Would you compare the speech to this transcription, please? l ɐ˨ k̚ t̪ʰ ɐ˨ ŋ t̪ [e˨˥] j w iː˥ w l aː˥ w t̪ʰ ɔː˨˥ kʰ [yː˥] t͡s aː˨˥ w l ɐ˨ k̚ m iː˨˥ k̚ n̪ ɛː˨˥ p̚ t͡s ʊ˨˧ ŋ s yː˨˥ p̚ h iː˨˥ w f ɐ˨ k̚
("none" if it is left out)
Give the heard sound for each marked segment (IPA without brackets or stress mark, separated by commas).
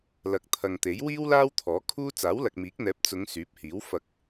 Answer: e˨˥, uː˥